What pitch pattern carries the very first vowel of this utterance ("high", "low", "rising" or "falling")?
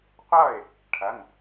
falling